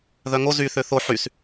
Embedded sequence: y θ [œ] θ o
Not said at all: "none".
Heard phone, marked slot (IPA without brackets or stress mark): ø